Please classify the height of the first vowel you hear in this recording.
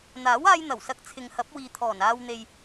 low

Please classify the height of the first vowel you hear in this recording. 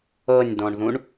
mid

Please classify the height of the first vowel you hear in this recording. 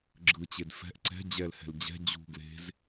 high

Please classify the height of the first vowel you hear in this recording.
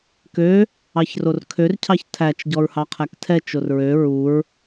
mid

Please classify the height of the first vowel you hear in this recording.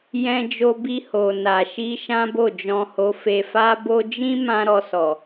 mid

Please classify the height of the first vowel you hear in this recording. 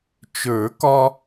mid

